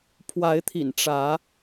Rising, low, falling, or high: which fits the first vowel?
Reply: rising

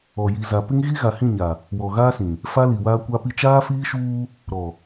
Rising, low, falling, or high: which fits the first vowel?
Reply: low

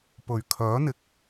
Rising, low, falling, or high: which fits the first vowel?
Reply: low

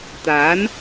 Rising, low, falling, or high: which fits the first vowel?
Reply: rising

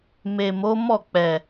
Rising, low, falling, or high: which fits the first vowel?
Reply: low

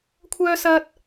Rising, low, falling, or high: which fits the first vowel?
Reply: high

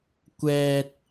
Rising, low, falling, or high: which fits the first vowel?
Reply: low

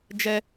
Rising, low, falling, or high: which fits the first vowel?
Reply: high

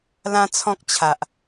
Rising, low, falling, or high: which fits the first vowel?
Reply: high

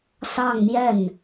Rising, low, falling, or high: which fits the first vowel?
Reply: falling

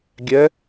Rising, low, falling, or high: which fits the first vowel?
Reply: rising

